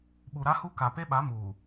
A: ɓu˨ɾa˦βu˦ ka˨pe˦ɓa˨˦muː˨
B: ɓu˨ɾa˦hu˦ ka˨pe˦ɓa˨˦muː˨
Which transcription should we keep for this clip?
B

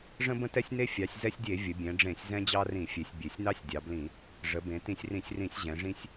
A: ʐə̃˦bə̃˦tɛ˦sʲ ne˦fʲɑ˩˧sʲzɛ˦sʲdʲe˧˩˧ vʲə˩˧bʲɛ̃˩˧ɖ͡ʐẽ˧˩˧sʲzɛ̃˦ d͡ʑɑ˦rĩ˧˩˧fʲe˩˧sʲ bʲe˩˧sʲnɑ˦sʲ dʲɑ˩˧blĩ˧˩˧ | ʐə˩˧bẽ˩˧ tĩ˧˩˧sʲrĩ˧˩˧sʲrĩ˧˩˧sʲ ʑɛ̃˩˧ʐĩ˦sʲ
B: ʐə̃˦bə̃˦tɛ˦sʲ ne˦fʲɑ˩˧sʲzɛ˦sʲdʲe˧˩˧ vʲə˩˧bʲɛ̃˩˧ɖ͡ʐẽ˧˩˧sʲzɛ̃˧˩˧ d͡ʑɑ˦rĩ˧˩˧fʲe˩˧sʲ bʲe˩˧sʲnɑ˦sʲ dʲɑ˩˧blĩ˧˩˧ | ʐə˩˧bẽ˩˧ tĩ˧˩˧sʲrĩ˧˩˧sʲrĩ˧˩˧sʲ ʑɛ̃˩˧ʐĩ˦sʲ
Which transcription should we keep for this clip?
A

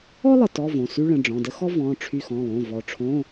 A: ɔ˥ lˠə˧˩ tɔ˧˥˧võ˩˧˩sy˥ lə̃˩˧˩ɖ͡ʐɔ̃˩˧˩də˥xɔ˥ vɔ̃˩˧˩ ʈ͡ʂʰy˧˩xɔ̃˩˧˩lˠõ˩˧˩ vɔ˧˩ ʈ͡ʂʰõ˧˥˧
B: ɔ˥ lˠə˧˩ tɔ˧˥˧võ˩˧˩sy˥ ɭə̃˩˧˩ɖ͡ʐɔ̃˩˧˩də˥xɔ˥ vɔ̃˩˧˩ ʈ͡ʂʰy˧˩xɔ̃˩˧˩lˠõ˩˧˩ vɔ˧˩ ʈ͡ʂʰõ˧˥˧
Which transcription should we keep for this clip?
B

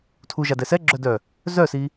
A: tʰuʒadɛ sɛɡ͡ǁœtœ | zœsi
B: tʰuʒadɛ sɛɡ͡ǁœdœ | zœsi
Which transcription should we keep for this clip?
B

